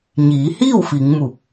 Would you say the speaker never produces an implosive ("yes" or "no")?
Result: yes